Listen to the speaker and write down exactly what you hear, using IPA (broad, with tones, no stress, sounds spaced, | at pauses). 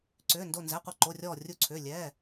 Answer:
ǀ ʏː˩˧˩ n d o˧˩ n z ɛ˩˧˩ qʷ i˧˩ ǃ o˩˧˩ rʲ ɔː˧˩ rʲ u˧˩ ǀʰ ʏː˩˧˩ lʲ ɛː˩˧˩